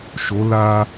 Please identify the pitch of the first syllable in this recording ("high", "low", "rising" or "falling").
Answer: rising